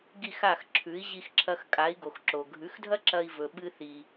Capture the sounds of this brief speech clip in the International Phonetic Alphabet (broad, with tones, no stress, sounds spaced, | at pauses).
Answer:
ɡ i˥˩ x a˥˩ x ǁʰ ʉ˩˥ i̯ ʑ i˧ x ǁʰ ɐ˧ x kʼ a˩˥ i̯ ɡ o˩ x ǁ o˩ ɡʱ ʉ˩˥ x dʱ ɐ˥ ǁ ɐ˧ i̯ v ɵ˩ ɓ ɨ˧ θ i˩